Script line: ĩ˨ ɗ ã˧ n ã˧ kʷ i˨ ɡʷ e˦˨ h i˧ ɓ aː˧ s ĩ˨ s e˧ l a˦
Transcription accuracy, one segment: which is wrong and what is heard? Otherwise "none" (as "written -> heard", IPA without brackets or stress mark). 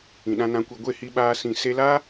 none